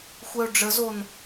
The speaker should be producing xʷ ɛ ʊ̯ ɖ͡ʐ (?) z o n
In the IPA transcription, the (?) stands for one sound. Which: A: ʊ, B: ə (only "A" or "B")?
B